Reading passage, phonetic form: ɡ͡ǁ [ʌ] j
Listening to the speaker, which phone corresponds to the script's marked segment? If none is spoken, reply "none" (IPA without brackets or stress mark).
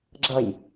ʌ